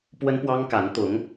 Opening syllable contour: high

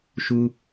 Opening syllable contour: high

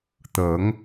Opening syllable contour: rising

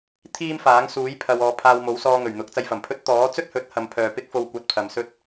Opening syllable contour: high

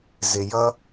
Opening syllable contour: low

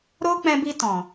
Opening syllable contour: high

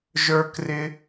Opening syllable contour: high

